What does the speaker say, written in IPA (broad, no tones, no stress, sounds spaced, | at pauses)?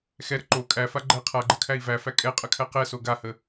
x ɛ ɾ ə ǃ o kʼ æ f a ɡ͡ǃ æ qʰ a ɡ͡ǃ ə kʰ æ i̯ v æ f æ kʼ ɛ qʼ ə kʰ æ q ɛ s o ɡ a h ə